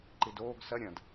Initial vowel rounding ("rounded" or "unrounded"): unrounded